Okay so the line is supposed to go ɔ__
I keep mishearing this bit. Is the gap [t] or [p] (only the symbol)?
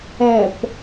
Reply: p